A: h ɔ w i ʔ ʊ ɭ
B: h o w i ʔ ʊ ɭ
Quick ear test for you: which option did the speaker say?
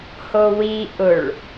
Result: B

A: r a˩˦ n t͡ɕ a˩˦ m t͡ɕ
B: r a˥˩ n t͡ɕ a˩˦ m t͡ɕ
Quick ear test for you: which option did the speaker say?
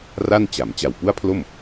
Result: B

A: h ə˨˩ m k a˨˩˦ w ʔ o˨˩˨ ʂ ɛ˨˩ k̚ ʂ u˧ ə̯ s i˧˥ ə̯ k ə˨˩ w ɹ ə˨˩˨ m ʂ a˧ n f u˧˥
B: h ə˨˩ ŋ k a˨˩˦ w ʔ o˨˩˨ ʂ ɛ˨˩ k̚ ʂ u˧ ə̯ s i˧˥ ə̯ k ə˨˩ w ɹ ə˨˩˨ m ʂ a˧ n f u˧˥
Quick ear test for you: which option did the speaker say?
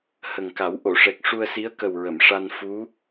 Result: B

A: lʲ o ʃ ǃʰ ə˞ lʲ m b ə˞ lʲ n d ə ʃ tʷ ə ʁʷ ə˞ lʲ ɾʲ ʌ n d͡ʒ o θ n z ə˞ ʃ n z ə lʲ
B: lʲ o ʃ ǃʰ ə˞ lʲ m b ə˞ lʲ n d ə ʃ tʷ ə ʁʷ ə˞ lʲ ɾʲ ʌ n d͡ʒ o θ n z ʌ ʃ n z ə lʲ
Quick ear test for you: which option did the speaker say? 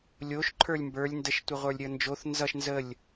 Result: B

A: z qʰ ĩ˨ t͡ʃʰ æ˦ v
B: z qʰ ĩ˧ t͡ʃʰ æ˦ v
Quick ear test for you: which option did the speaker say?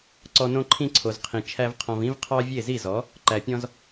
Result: A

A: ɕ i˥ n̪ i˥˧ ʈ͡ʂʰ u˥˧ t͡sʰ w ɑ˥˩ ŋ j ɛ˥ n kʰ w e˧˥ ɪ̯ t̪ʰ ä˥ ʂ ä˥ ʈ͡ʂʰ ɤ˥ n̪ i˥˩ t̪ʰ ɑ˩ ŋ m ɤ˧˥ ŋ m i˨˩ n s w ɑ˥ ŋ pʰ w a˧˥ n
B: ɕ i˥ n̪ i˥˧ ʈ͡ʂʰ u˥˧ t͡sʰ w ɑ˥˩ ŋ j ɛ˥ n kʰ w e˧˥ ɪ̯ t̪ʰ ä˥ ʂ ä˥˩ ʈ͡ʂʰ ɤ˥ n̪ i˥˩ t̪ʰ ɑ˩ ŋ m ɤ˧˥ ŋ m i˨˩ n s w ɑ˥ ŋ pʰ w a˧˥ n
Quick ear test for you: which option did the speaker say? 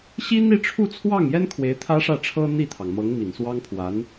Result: B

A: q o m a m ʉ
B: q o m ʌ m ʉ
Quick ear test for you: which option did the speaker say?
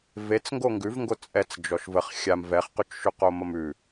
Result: B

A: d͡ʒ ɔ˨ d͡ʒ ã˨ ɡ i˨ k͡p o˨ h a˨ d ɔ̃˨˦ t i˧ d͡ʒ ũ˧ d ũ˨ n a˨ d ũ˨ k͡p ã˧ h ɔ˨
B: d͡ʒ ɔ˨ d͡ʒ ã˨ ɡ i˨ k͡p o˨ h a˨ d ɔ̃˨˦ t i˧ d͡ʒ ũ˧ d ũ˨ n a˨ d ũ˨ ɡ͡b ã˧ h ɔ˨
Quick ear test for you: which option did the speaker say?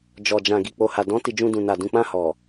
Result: A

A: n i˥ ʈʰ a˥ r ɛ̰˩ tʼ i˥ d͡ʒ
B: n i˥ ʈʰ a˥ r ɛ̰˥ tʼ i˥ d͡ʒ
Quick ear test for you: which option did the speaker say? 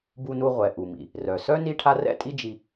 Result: B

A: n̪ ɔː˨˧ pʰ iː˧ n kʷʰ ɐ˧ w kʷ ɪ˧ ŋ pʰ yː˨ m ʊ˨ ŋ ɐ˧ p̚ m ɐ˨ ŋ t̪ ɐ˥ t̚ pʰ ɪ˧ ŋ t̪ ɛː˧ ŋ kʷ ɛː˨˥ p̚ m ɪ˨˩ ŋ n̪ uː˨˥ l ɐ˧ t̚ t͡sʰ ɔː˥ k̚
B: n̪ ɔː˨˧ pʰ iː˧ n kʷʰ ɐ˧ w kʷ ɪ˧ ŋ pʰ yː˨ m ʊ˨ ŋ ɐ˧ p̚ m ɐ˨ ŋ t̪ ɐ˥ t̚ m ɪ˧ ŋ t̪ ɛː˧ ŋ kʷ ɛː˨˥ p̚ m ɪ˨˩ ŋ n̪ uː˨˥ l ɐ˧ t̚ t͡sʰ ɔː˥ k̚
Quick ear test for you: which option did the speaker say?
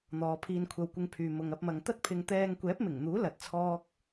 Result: A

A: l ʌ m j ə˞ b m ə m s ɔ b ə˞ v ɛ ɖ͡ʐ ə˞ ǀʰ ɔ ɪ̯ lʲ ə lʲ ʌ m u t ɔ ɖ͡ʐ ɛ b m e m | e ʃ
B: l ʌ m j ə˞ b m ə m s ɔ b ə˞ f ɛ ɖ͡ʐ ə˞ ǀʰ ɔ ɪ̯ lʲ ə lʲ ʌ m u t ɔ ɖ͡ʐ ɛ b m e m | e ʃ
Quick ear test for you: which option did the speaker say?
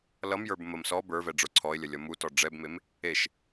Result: A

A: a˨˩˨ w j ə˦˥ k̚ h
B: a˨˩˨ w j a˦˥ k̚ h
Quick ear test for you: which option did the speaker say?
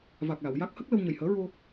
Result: B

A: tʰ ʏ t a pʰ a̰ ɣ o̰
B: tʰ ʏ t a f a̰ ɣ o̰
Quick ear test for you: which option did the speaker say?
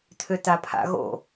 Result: A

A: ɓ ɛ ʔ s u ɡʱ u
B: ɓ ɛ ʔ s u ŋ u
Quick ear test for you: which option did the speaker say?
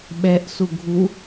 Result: A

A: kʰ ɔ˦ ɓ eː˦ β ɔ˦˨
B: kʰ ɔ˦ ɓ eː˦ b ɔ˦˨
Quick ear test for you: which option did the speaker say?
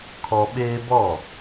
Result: B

